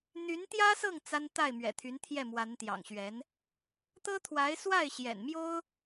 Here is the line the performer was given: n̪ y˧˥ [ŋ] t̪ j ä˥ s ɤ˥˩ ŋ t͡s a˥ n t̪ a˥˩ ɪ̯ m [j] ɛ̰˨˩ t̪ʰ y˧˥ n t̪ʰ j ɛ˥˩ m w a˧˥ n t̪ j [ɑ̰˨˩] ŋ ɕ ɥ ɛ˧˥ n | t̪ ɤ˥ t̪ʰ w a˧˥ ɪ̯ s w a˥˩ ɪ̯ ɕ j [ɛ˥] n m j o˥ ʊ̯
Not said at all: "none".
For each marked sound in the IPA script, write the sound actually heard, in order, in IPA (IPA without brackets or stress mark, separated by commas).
n, ɥ, ɑ̰˨˩, ɛ̰˨˩